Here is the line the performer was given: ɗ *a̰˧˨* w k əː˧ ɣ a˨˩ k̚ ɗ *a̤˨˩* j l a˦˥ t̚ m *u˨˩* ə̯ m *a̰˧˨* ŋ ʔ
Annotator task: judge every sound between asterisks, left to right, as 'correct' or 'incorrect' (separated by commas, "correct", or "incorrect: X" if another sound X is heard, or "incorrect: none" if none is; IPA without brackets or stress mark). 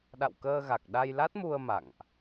correct, incorrect: a˧, incorrect: u˧, correct